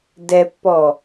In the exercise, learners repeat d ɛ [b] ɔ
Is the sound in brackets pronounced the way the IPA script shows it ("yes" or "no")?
no